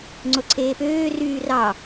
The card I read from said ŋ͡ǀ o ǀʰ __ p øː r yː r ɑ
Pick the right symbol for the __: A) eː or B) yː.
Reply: A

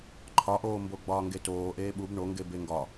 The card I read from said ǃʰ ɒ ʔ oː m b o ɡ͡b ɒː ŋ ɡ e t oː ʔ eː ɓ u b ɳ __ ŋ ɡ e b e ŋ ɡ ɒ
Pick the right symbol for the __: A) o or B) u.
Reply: A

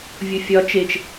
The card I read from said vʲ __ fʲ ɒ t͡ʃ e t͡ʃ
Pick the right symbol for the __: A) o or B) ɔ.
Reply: A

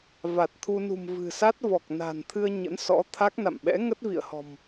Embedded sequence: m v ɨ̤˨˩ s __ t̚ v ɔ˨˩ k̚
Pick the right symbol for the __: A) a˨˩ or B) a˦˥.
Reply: B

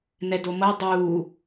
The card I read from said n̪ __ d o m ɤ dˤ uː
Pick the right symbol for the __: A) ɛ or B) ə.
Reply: A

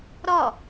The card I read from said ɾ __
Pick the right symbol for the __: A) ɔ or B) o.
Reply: A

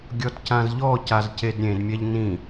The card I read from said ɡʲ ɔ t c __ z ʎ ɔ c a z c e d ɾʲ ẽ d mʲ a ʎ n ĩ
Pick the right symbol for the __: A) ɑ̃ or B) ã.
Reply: B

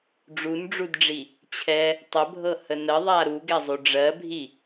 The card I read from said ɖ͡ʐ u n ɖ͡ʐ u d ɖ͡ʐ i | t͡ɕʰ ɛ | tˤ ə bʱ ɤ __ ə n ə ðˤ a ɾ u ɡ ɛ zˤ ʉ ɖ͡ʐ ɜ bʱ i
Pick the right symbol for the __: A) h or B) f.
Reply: A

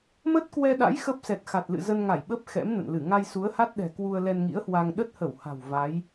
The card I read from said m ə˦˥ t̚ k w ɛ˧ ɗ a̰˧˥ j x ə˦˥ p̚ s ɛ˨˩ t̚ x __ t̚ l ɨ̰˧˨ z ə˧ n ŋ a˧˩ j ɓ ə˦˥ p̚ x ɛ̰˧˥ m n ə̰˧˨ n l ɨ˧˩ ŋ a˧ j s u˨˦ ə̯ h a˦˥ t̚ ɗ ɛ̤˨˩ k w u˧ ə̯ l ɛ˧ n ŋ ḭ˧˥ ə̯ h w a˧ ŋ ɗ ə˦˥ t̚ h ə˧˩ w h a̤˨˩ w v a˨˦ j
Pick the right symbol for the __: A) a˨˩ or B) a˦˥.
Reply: A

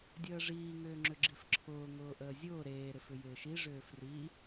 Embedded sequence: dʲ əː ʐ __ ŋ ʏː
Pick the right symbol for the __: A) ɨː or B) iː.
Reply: B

